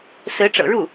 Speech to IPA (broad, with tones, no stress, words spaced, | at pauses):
sɹ̩˧˥ʈ͡ʂɤ̰˨˩ɻu˥˩